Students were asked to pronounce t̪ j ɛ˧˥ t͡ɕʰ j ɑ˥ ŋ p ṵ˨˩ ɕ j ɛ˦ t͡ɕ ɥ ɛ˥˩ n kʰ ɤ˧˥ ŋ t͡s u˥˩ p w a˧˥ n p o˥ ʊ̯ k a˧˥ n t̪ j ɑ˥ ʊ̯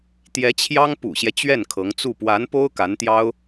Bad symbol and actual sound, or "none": none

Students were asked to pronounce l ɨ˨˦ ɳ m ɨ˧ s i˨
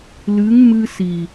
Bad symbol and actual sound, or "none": ɳ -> ŋ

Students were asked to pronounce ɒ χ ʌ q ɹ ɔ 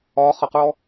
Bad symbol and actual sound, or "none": none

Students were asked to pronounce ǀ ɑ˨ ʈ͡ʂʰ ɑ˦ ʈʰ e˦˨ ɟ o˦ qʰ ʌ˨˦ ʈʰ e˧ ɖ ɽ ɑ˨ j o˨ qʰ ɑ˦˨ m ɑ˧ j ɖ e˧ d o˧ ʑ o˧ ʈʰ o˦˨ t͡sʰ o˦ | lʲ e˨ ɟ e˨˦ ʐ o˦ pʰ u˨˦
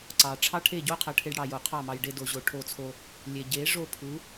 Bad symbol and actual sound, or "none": none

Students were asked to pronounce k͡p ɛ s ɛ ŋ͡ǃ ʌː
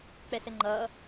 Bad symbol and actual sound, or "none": none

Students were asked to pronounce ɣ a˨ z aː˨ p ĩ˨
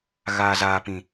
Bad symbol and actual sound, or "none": a˨ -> aː˨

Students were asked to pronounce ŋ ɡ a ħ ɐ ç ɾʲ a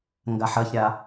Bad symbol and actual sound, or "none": none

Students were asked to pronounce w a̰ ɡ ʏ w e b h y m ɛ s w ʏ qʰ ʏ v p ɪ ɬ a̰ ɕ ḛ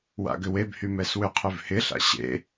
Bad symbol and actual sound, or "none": p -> h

